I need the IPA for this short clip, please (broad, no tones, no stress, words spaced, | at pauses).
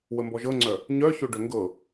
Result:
wəmbɔʒɤŋ͡ǀœ | ɲœço ɖœŋɡɤ